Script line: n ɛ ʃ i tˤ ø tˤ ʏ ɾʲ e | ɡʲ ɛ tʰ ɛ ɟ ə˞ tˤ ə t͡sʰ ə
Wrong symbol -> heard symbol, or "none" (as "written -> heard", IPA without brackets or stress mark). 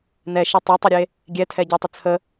none